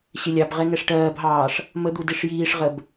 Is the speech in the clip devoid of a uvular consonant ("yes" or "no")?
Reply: no